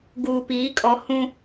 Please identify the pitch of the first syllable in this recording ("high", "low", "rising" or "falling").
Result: low